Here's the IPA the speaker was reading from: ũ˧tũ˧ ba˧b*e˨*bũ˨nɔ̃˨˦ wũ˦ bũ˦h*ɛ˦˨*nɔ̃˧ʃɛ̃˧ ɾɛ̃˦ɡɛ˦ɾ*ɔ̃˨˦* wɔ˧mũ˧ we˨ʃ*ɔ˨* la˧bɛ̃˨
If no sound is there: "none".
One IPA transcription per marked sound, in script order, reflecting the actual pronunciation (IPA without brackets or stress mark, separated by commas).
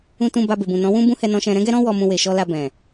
e˨, ɛ˧, ɔ̃˦, ɔ˧